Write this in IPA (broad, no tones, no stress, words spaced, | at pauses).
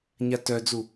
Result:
ɲatœd͡zu